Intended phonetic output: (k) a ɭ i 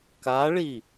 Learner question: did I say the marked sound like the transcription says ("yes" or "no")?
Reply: yes